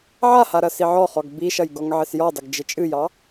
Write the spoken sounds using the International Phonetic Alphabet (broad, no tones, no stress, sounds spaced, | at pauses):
ʕ a h a ɾ ɐ s i ʕ ɔ χ ɔ ɡ b i ʃ ɐ j ɡ ɔ ŋ ʕ ɪ s j ɔ dˤ ɪ ɡ d͡ʒ ɪ t͡ʃʼ ɨ j ɑ